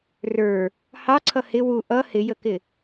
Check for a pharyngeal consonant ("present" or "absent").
absent